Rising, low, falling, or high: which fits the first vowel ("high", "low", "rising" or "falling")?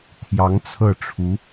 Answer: rising